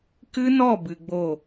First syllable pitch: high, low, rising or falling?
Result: high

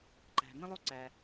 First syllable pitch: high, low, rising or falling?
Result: low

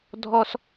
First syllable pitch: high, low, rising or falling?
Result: high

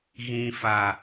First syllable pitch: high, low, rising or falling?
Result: low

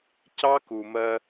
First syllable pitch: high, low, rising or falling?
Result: high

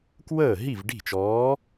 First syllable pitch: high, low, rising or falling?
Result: falling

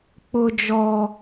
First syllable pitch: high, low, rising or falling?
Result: high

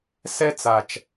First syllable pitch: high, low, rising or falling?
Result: high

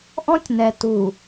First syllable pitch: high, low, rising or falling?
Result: high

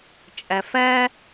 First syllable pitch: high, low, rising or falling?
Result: low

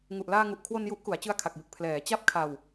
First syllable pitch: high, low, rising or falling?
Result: low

